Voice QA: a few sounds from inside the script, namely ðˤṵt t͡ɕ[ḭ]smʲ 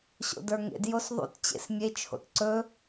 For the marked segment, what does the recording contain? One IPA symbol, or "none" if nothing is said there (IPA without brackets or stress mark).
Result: ḛ